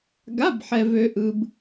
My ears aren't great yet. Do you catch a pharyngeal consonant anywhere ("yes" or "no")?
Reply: yes